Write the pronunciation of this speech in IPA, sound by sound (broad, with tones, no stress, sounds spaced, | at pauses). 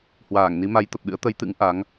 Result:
h w aː˧˩ ŋ n i˨˦ m a˨˦ j t̪ ə˨˩ p̚ ɗ ɨ̰˧˥ ə̯ t̪ ə˨˦ j t̪ ɨ̰˧˥ ŋ ʔ a˨˦ ŋ